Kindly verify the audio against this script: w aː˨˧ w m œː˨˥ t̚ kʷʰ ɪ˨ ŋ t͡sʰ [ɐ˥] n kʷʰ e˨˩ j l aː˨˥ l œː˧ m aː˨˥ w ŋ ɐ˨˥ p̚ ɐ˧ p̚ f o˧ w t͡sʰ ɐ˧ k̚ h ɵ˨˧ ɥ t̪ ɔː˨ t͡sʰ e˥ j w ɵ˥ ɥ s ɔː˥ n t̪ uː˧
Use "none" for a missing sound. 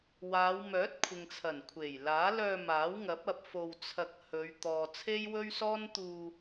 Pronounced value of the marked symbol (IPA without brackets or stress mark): ɐ˨˩